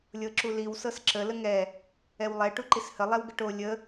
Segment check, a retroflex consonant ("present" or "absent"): present